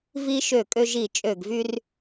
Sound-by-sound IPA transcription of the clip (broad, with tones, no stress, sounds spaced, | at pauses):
v i˧ ʃ ø˧˩ kʼ ø˧ ʒ i˧˩ t͡ʃʼ ø˧˩ ɡ v y˧ r